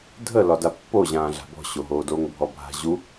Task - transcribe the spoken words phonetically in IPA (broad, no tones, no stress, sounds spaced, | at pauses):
dʱ ə l ɒ d a pː o ʑ ãː ɮ a̤ b ɔ̤ ɕ o ɦ oː d o ŋ bʱ ɔ bʱ a̤ ʑ u